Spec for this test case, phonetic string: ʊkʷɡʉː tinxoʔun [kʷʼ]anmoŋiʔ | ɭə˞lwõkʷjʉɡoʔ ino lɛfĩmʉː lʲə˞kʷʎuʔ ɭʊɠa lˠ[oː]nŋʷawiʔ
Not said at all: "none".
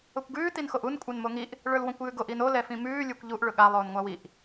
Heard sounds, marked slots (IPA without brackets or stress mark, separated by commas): kʷʼ, oː